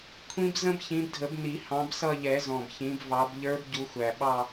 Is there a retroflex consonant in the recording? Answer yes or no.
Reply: no